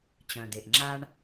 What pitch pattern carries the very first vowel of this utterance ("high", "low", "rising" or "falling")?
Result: low